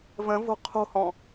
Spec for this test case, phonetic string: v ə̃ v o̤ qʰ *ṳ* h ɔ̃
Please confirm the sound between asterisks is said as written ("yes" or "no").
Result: no